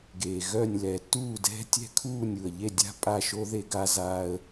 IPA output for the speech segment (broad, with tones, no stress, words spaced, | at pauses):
ɡeː˨ ɣœ˥˨nʲ lɛː˨tːuː˥˨ dɛ̤˥ tʲɛ̤˥˨kʰuː˥˨nʲu˨ə̯ ʎe˥˨dʲa̤˥ pʼa˥˨ʃo˥ ðe˥ɡaː˥zaː˥ə̯